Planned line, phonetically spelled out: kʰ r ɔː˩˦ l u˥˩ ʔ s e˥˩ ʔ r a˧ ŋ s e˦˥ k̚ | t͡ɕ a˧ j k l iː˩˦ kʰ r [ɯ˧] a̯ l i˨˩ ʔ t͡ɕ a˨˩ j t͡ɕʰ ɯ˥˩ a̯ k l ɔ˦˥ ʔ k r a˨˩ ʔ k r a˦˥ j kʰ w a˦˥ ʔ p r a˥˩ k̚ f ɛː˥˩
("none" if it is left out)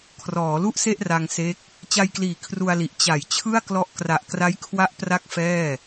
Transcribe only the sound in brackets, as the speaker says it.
u˧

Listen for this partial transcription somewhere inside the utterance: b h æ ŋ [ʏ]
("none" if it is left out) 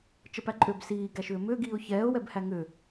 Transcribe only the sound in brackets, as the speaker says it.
ʏ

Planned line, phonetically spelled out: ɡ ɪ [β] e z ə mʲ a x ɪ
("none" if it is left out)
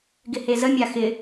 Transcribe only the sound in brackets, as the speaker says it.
h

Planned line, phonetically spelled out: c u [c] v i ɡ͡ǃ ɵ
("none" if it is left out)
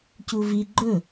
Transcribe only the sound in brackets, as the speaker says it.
none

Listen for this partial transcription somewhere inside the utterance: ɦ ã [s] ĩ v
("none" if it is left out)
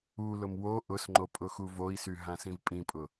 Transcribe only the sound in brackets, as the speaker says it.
s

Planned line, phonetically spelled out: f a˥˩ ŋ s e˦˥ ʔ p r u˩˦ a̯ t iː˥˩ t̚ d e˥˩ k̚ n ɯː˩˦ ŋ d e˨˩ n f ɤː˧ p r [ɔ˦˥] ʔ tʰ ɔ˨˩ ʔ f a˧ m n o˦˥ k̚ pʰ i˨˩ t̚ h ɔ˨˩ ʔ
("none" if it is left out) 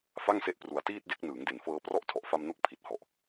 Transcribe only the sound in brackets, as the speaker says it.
ɔ˥˩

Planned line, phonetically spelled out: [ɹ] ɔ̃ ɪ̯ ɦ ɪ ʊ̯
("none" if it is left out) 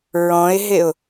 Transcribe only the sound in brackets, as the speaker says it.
ɹ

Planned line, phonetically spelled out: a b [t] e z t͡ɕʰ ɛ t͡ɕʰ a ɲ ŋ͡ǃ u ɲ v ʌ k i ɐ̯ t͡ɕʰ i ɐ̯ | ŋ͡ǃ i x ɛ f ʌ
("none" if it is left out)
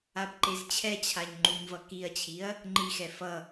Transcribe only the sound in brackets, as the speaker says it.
ǃ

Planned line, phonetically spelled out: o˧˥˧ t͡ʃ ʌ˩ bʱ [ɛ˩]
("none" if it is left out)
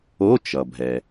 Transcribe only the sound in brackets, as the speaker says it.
ɛ˩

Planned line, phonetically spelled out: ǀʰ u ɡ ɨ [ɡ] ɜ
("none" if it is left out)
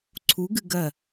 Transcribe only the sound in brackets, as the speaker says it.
ɡ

